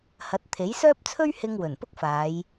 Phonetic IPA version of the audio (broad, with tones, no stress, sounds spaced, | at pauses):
h ɐ˨˥ t̚ t̪ʰ e˨˥ j s œː˥ p̚ t͡sʰ ɵ˥ ɥ h ɪ˧ ŋ w ɵ˨˩ n p ʊ˥ k̚ f aː˨˧ j